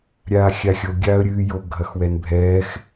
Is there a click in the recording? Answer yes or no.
no